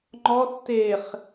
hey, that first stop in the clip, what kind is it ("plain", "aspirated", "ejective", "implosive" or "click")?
click